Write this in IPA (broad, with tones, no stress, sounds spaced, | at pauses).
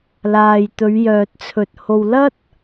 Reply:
l aː˨ j t̪ ɵ˨˧ ɥ j œː˨ t̚ t͡sʰ ɵ˨ t̚ h o˨ w l ɐ˥ t̚